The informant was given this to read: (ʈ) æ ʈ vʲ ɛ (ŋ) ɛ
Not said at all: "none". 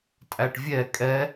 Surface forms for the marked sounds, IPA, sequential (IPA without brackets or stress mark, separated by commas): tʼ, kʼ